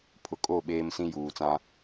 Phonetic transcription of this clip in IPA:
pʰ ʊ˨ kʼ o˦˨ ɓ eː˦ m s ĩ˦ j uː˨ t͡s ã˦

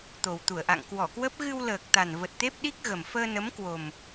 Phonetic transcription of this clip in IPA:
t̪ o˨˩ w t̪ u˧˩ ə̯ ʔ a̰˧˨ ŋ k w ɔ˧˩ k w ə˦˥ p̚ ɣ ɨ˧ w l əː˨˩ k̚ t̪ a˨˩ n v ə˨˩ t̚ t̪ e˦˥ p̚ ɗ i˦˥ k̚ ɣ ə˨˩ m f əː˧ n ə˨˦ m k w o˨˩ m

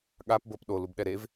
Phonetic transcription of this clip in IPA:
ɠ a p b ɤ p ɗ o l u b ɗ ɛ ɾ e v

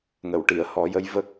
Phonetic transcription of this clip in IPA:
ŋ ə˨˩˨ w ʈ i˨˩˨ ə̯ h ɔ˨˩˦ j ə˧˥ j v ə˦˥ k̚

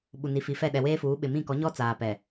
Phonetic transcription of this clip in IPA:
ɓ u˨ n i˨ f i˨ f ɛ˦˨ ɗ ɛ˨ w eː˦ f uː˨˦ ɓ ɪ˨ m ĩ˦˨ k ɔ˨˦ ɲ ɔ˦ t͡s aː˨ p ɛ˨

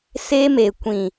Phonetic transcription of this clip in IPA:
s e˦ m e˨ kʷ ĩ˨

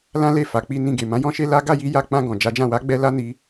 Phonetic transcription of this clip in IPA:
l ã˦ l e˦˨ f a˨ k͡p i˧ n ĩ˧ ɡ e˨ m ã˨˦ j ɔ̃˦ ʃ e˦ l a˦ ɡ a˦˨ j i˧ j a˧ k͡p ã˧ ɡ ɔ̃˨ d͡ʒ a˨˦ d͡ʒ ã˦˨ w a˨˦ ɡ͡b ɛ˧ l a˦ n i˧

